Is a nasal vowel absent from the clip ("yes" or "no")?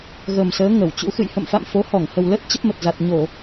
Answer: yes